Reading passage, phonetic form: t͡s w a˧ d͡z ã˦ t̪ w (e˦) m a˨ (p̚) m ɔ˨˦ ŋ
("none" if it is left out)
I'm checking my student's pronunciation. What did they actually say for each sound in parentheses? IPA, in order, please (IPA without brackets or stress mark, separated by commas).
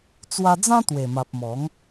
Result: e˨˩, p̚